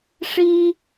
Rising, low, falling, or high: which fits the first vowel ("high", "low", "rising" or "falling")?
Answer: high